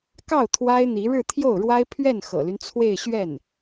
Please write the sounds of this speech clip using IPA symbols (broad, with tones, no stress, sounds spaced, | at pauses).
k ɑ˥˩ ʊ̯ t̪ʰ w a˥ ɪ̯ n̪ i˧˥ ɻ ɻ̩˥˧ t̪ʰ j o˥˩ ʊ̯ ɻ w a˥ ɪ̯ pʰ ɥ ɛ˥˩ n x ɤ̰˨˩ l y˦ n t͡sʰ w e˥˧ ɪ̯ ɕ ɥ ɛ˥˩ n